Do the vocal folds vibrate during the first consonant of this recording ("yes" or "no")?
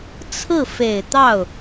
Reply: no